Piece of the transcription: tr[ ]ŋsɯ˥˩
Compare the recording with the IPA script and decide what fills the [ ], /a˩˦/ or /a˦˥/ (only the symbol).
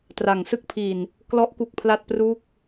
a˩˦